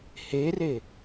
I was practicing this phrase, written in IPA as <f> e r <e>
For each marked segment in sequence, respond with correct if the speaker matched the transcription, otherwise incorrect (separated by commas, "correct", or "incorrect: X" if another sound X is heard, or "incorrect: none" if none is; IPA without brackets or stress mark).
incorrect: h, correct